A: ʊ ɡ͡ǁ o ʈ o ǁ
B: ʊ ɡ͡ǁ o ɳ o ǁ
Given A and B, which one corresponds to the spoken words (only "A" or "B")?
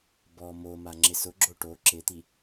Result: A